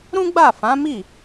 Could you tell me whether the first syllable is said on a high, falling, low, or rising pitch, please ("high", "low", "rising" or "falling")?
high